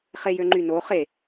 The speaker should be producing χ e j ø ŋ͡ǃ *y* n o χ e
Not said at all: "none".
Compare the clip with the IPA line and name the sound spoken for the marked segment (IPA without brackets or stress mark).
y